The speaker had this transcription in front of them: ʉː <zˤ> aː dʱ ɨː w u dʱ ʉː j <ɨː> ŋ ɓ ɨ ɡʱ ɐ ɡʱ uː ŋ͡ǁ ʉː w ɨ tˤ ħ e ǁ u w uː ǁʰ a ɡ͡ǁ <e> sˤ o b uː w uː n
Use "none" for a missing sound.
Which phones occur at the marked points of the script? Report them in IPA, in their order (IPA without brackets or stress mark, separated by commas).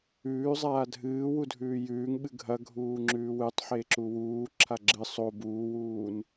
zˤ, ʉː, ɨ